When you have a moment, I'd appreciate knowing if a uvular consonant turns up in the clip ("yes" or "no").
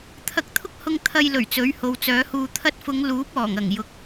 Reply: no